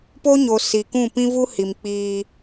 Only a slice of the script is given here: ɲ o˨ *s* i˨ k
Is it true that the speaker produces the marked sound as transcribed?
yes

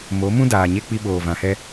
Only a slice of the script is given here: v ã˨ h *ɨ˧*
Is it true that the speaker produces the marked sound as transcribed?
no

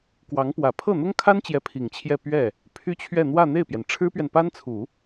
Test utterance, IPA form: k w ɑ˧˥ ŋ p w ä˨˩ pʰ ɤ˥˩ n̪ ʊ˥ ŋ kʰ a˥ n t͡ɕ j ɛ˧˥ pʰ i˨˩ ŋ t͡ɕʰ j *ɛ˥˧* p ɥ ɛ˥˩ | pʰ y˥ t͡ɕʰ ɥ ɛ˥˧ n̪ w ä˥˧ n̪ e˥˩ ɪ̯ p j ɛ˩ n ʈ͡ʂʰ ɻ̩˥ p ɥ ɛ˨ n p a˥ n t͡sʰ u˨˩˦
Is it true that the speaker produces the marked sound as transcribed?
yes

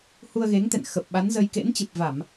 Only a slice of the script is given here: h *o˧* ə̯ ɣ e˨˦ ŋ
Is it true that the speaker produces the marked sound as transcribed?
no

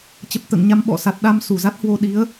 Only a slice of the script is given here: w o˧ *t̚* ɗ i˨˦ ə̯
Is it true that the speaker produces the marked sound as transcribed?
no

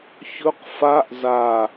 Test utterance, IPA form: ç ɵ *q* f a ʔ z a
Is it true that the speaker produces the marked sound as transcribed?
yes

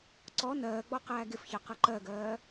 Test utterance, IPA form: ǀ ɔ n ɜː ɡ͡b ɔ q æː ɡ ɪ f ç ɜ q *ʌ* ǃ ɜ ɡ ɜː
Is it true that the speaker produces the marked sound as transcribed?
yes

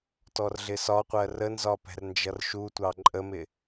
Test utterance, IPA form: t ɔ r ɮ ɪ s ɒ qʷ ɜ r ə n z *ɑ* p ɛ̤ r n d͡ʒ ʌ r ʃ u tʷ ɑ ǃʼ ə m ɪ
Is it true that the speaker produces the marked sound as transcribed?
no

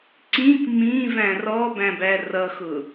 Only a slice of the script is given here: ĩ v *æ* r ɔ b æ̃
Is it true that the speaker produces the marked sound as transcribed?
no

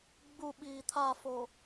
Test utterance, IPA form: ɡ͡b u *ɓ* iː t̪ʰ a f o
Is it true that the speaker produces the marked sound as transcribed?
yes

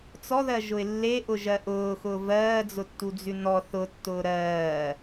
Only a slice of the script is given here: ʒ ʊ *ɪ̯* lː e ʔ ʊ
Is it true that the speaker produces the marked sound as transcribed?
yes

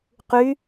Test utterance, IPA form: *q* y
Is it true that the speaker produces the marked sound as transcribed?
yes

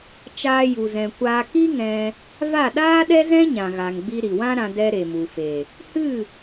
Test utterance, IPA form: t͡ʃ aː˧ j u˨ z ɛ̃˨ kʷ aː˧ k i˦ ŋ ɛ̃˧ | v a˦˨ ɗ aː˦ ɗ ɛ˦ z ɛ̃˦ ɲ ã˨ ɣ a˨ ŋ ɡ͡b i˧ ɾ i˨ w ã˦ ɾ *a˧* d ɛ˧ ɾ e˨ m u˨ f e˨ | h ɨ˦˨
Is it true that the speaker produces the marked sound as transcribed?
no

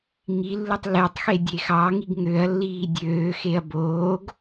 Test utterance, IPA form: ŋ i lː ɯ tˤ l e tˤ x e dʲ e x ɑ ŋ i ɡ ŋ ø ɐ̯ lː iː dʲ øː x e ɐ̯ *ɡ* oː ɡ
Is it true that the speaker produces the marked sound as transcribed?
no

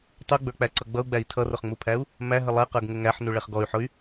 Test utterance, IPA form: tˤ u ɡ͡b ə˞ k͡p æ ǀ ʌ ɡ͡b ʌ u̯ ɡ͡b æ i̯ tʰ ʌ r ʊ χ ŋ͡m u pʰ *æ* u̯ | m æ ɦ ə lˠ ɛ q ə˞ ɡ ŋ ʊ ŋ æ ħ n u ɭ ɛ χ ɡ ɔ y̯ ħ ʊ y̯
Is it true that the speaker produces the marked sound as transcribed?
yes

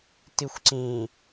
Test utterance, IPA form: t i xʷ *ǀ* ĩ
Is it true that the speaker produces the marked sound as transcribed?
yes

